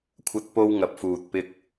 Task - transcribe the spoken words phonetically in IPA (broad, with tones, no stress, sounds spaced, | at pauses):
kʷʰ ɐ˧ t̚ p o˧ w ŋ ɐ˨ p̚ f uː˨ t̚ p ɪ˥ k̚